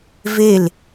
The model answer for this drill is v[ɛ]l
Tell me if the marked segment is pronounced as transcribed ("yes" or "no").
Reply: no